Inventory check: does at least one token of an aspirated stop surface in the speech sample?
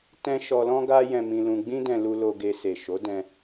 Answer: no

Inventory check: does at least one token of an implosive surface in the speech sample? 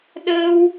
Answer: yes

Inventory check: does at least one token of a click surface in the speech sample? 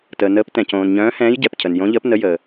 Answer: no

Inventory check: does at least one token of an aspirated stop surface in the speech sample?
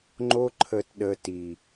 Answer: yes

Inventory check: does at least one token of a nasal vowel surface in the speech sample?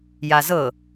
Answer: no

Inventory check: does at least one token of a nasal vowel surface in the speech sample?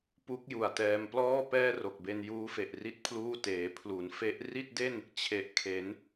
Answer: no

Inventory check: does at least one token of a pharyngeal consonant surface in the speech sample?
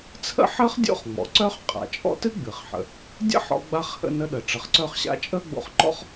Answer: yes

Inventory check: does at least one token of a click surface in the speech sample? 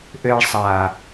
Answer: no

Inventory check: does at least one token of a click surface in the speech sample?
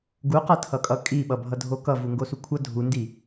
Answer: no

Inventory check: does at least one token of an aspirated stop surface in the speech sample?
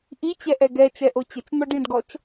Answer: no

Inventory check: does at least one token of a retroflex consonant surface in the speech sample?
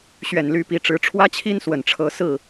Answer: yes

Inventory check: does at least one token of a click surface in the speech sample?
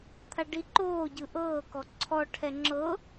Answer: yes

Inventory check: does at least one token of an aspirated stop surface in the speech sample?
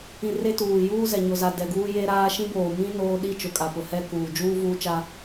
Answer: no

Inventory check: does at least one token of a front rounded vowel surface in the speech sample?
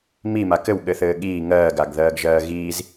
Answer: no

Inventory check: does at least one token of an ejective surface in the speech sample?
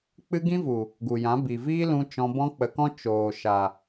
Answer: no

